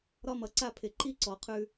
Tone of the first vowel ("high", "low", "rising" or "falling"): high